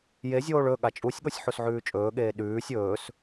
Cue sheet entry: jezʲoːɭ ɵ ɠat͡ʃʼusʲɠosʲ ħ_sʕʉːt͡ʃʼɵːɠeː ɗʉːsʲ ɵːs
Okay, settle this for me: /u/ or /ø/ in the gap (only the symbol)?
u